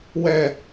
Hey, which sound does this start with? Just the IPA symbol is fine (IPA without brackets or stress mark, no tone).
w